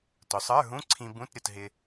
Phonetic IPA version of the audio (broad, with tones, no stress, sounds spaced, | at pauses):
t ʊ˩˧ sˤ ə˞˧˥˧ ɦ ũ˧˥˧ ǀʰ ĩ˧ b ũ˧˥˧ t ɾʲ ʊ˩˧ t ɦ ɪ˧